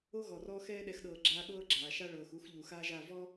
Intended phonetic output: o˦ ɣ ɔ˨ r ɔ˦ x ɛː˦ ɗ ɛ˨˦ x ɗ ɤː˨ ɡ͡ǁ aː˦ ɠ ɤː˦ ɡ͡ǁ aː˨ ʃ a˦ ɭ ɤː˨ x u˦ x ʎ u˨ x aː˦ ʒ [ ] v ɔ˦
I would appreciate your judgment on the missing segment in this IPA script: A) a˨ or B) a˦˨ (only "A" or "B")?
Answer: B